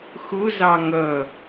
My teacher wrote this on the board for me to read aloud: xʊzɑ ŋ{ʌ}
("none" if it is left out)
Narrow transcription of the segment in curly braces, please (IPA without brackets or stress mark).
ʌ